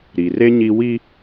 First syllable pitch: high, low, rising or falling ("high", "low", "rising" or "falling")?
low